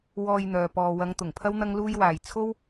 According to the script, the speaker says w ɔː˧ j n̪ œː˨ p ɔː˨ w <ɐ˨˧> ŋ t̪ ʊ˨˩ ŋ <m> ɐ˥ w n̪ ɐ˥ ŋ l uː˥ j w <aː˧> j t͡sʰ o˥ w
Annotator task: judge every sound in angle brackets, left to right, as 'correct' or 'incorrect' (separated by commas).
correct, incorrect, correct